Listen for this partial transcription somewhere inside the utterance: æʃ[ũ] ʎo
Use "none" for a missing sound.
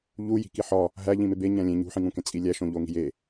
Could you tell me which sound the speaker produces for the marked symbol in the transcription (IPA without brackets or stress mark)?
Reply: õ